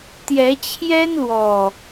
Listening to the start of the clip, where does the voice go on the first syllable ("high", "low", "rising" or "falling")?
rising